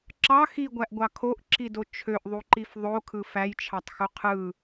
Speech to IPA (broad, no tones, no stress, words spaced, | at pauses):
ǁɑ xiɡʷæʔɡʷɑ kʰoʔǁido t͡ʃʰøʔðˤuǃif ðˤokʰɯ fæjt͡ʃʰɑtˤxu qʰɯ